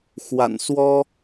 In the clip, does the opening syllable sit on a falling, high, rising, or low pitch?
low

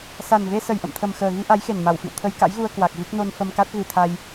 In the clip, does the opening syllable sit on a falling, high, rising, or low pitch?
low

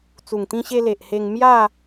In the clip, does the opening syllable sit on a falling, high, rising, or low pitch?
low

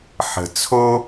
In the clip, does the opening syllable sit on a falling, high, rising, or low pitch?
low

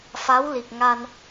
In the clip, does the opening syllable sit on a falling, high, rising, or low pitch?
rising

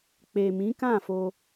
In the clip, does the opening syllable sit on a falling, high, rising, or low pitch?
low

